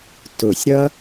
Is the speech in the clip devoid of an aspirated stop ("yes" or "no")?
yes